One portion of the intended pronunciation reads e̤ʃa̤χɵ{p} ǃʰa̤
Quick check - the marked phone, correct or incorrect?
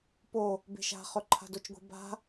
incorrect